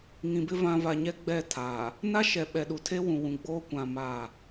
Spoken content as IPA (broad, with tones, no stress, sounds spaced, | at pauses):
ŋ ĩ˨ b ɪ˦ v ã˨ v a˨ ɲ ɛ˦ ɡ͡b ɛ˦˨ tʰ aː˨ | n a˦ ʃ ɛ˨ ɓ ɛ˨ ɗ u˨ tʰ e˦ w ũ˨ w ũ˨ ɡ͡b oː˦ kʷ ã˨ m aː˦˨